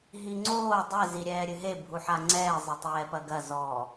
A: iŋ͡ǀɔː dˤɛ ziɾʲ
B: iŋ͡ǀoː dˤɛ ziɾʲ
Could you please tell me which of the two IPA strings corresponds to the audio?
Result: B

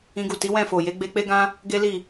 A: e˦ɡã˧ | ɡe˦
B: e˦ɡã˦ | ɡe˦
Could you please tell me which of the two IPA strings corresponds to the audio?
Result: B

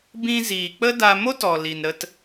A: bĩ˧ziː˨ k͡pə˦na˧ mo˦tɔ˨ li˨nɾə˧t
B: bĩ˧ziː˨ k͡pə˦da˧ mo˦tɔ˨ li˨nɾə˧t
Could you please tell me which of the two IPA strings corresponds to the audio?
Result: B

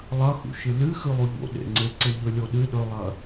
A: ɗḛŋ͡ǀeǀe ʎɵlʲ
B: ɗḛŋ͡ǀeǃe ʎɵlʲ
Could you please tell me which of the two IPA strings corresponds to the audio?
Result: A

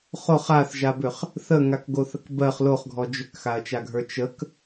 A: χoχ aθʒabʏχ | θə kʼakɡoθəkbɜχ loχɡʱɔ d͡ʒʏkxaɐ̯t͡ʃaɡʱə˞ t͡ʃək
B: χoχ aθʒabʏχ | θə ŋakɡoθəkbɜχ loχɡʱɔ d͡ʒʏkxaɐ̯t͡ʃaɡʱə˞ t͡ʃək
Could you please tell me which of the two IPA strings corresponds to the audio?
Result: B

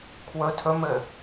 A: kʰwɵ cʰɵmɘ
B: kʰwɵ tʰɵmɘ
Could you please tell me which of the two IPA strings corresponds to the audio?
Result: B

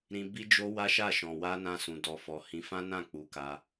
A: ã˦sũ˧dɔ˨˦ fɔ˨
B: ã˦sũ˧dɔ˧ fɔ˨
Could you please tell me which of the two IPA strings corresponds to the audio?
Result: B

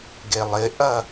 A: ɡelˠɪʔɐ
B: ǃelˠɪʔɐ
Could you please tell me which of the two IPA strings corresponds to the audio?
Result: A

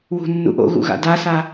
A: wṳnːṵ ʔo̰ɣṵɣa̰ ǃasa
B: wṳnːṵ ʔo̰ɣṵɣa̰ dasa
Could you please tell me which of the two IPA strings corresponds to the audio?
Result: B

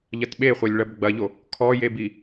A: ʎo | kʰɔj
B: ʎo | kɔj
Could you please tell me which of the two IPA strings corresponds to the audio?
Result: A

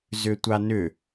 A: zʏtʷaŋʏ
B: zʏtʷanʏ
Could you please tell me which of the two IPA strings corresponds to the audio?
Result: B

